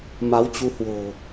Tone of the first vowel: rising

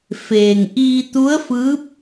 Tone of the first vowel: low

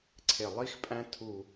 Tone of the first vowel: low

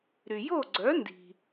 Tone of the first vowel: low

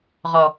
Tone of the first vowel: low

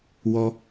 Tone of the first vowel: high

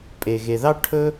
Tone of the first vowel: low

